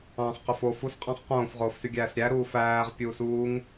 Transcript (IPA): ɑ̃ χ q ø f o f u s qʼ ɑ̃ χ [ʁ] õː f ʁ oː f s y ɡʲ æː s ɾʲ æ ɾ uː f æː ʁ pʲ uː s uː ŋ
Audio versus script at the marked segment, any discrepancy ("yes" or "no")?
yes